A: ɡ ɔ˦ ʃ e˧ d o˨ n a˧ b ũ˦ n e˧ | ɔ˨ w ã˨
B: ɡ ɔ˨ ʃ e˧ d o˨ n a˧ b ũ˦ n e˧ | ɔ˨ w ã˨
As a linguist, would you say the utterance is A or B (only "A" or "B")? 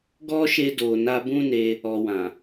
A